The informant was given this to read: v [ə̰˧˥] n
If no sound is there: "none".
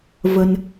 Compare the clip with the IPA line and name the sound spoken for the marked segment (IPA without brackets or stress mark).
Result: ə˧